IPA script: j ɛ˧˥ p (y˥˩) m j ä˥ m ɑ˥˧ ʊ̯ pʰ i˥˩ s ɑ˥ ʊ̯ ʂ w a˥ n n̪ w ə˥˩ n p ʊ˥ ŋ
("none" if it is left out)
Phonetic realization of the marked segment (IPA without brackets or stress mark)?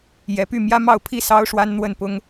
y˥˩